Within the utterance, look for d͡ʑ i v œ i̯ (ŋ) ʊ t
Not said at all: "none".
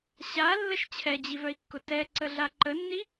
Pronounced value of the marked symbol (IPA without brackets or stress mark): kː